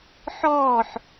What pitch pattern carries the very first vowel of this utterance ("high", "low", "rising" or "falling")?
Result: falling